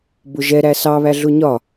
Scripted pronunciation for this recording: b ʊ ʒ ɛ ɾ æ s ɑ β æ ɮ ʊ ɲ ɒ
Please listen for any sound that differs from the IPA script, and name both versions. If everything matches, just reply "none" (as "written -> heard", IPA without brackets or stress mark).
none